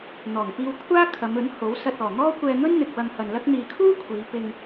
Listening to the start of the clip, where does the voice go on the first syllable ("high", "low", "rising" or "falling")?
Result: low